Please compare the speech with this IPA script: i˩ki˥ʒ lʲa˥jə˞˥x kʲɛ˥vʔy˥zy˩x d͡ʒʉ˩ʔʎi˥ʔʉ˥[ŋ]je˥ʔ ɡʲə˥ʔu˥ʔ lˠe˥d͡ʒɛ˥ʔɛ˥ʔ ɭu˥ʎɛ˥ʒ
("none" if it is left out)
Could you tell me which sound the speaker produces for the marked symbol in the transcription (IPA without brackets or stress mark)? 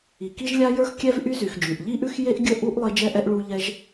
x